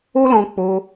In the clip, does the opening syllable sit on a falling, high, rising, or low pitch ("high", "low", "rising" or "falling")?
high